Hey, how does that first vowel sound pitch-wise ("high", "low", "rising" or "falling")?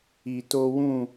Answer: low